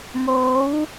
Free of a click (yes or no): yes